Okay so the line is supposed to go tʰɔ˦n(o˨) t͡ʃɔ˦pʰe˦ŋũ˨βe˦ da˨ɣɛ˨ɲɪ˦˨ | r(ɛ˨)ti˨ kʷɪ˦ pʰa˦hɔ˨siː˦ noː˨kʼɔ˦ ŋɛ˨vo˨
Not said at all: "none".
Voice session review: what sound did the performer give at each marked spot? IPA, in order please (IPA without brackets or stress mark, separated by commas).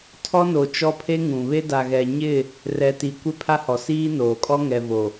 o˨, ɛ˨